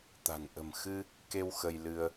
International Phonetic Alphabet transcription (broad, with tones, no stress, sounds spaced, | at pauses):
t̪ a̤˨˩ n ʔ ə̤˨˩ m x ɨ˧ | k e˧ w x ə˧ j l ɨ˧ ə̯